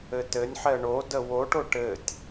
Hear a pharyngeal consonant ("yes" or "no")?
yes